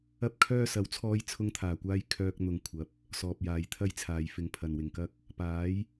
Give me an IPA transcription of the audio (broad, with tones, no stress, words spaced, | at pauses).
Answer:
ɐ˥p̚kʰœː˥ sɐ˨˥wt͡sʰɔː˧j t͡sʰʊ˧ŋt̪ʰaː˨˩kʷaː˧j kʰœː˧k̚n̪ʊ˨ŋkʷʰɐ˨˥p̚ | sɔː˨p̚jaː˨jt̪ʰɐ˥jt͡sʰaː˨j fɪ˨ŋpʰɐ˨˩nwɪ˨˩ŋkɐ˥k̚ | paː˨˥j